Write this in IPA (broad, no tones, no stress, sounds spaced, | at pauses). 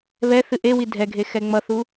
β ɛ θ ɨ ʔ e w i dʱ ɛ ɡʱ e x ɛ ŋ͡m ʌ θ u